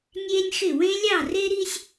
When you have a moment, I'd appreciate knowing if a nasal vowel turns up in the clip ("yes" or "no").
yes